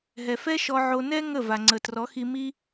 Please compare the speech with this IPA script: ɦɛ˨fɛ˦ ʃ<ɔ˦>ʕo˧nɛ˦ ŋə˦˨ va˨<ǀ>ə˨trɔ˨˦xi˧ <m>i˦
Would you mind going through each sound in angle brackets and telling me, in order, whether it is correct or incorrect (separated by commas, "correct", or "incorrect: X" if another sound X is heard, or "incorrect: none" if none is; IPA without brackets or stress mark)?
incorrect: ɔ˧, incorrect: ŋ͡ǀ, correct